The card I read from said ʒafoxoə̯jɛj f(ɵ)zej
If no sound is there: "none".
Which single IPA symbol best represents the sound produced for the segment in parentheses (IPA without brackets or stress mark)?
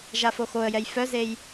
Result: œ